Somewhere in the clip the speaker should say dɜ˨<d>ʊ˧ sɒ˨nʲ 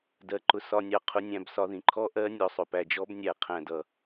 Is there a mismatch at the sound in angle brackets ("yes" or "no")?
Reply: yes